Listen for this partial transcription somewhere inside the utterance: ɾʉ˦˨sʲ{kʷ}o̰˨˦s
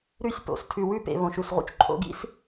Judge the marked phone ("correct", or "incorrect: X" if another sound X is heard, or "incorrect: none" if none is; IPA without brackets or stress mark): incorrect: p